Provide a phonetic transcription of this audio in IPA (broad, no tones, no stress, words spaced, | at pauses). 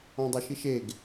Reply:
ɔ̃dˤoʃiʃeɡ